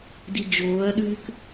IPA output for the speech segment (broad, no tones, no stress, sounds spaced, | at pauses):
d i d͡ʒ oː ɐ̯ ɗ ʉː k